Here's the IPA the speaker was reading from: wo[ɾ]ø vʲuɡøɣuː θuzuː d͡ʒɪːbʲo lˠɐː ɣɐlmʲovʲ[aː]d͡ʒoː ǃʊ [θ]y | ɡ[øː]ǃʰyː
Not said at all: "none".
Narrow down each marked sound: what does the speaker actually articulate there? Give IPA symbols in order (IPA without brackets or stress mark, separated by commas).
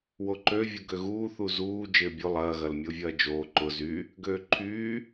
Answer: ǃ, ɐː, z, øː